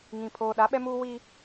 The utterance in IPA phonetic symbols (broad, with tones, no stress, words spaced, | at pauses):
ŋĩ˨ pʰoː˨ɗa˨˦ɓɛ˦muː˦ wi˦